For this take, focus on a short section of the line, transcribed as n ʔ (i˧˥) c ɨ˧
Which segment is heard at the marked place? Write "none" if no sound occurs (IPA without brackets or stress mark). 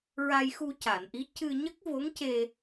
i˧˥